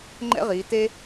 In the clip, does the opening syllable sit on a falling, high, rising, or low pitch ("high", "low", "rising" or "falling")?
high